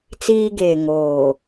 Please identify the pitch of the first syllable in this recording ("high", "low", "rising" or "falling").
high